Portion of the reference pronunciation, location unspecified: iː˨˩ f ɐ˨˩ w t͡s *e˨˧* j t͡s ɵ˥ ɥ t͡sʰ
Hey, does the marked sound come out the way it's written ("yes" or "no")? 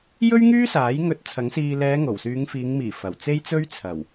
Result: no